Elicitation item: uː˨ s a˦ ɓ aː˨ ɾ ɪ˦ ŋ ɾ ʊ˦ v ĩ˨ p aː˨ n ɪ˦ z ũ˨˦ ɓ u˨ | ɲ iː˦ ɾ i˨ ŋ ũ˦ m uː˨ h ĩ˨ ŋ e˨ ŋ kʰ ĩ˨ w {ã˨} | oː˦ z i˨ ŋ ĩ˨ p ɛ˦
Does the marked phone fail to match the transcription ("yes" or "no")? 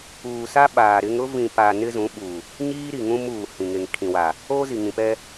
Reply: yes